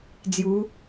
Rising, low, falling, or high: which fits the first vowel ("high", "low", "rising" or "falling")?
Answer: rising